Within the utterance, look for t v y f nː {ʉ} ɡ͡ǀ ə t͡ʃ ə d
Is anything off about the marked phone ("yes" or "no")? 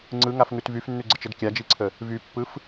no